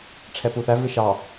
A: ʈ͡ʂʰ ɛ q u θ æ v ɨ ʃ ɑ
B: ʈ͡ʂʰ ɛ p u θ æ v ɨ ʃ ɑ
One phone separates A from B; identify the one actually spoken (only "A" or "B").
B